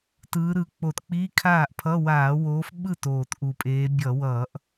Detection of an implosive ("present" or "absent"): present